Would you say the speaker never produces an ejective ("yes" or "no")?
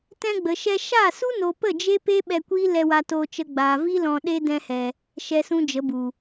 yes